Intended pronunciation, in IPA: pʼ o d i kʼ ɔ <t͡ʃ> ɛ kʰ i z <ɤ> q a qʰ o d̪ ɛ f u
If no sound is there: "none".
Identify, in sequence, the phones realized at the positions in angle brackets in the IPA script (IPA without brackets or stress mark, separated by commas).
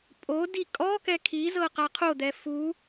k, ɤ